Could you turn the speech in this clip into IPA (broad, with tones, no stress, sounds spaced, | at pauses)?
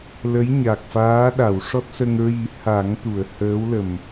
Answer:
l ə˧˥ j ɲ a˨˩ k̚ f aː˧˥ ɗ a˨˩˨ w ʂ ɔ˦˥ t̚ s ə˧ ŋ ɹ i˨˩˦ h a˨˩˦ ŋ t̪ u˨˩˨ ə̯ h əː˧˥ w l ə˨˩ m